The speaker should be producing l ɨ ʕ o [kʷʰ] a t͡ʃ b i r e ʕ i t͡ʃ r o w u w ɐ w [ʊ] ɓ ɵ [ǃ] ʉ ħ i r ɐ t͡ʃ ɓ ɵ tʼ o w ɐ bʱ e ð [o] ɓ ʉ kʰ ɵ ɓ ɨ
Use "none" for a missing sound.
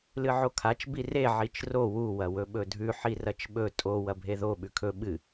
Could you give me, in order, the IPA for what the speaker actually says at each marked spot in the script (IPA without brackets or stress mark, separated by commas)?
kʰ, ɵ, dʱ, o